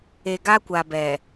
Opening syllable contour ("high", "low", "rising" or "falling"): low